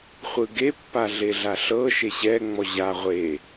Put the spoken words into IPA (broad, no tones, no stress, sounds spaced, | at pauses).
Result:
χʷ ɯ ɡ e pː a ɮ e ɮ a ɬ ɤ ʃ e ɕ ɛ ŋ͡m ɔ ʑ a ʁʷ e